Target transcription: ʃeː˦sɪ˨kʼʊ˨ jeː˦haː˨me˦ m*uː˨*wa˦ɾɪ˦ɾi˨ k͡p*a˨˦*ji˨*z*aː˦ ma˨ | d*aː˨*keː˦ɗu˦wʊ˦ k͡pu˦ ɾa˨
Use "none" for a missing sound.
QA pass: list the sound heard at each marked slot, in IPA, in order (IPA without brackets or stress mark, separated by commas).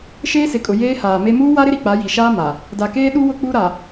uː˦, a˨˦, ʃ, a˨